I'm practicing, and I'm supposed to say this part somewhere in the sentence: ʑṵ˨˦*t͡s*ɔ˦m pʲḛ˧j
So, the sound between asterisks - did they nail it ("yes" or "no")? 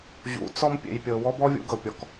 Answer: yes